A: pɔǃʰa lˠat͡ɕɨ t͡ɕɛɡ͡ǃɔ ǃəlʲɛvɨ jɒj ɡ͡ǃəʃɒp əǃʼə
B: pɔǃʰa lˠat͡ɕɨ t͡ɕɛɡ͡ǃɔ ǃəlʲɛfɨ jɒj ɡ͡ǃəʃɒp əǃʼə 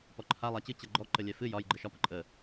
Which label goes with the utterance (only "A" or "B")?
B